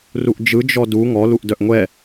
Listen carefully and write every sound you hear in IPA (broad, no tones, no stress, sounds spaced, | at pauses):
r u ʔ d͡ʒ ɯ d͡ʒ ɔ d u ŋ ɔ l u ʔ d œ ʔ ŋʷ ɛ